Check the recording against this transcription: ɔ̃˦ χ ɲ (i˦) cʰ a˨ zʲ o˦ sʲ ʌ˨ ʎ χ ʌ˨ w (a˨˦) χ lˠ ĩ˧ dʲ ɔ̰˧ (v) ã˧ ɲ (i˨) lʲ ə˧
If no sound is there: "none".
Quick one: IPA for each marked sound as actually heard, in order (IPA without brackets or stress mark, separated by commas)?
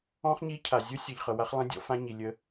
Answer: i˦, a˧, f, i˨